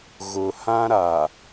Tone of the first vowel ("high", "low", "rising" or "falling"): low